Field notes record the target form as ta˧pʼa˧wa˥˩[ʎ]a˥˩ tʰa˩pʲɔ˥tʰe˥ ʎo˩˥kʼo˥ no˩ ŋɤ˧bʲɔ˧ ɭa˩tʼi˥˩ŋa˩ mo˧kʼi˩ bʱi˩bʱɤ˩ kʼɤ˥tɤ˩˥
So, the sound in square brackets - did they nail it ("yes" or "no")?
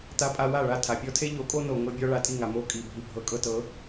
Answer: no